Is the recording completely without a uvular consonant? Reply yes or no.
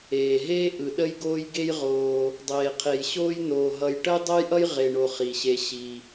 no